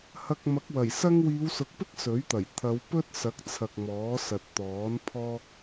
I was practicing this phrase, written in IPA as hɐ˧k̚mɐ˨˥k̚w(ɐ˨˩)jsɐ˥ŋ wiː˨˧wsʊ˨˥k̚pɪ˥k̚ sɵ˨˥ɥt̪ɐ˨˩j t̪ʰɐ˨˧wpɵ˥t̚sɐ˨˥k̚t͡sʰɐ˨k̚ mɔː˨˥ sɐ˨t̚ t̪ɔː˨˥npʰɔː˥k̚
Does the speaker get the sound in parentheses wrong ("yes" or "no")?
no